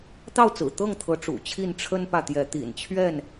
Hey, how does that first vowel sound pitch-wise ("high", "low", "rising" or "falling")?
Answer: falling